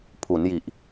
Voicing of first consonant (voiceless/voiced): voiceless